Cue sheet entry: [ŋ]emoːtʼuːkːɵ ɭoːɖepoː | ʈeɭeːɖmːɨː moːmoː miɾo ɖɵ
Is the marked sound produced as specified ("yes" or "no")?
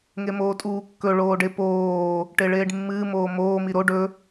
yes